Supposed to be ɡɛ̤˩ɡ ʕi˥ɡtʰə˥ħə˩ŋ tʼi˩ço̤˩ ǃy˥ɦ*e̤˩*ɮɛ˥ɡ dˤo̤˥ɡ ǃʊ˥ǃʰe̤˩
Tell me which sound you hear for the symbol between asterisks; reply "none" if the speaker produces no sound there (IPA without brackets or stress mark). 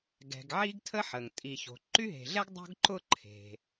e̤˩